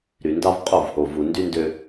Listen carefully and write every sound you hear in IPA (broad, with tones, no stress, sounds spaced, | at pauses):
ɾ y˨ n d ɑ˦ v qʼ o˦˨ v h o˨ v u˨ n d y˦ n d ø˦